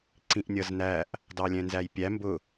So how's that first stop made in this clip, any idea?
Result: click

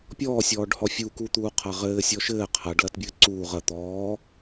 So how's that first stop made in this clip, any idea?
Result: plain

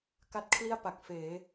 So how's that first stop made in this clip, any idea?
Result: plain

